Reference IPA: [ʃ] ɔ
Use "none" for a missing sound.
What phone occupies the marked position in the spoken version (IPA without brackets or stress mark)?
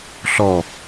ɬ